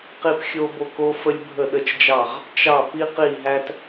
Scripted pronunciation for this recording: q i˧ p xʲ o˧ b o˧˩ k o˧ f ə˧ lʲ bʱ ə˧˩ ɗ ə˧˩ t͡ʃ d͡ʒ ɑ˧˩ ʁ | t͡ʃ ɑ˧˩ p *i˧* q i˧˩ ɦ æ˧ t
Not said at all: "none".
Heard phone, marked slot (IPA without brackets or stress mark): i˧